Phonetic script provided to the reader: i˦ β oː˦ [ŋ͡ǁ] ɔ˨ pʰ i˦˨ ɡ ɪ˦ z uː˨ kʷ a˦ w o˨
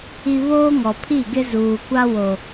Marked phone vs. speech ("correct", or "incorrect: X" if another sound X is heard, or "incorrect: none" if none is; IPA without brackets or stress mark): incorrect: ŋ